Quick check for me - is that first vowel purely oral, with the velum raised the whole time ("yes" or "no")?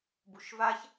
yes